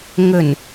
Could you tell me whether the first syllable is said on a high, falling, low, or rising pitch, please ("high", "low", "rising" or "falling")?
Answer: low